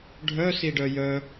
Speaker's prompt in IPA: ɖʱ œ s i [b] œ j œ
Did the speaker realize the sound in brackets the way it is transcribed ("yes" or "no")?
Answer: no